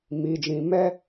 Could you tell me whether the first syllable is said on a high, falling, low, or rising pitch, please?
low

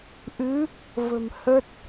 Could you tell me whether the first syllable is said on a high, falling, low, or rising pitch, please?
rising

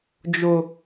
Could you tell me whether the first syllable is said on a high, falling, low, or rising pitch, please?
high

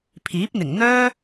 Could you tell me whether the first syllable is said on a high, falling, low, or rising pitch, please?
rising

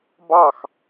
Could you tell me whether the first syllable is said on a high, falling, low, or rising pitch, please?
falling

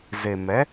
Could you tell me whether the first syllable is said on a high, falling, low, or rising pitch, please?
low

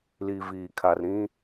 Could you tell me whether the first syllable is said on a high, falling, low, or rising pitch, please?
low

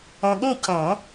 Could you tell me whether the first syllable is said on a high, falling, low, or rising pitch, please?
low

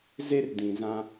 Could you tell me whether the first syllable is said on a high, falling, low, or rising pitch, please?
high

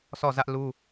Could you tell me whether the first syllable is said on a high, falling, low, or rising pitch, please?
falling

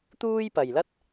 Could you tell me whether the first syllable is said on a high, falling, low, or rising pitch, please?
high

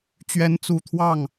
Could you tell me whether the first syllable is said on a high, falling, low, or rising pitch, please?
rising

